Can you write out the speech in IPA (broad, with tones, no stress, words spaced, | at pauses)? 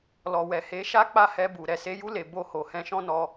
lɔ˨wɛ˨he˨˦ʃa˦ k͡pa˦˨hɛ˧bu˨ ɾɛ˨se˨˦ju˧le˨ bo˧ho˨ hɛ̃˧ʃɔ̃˦ nɔ˧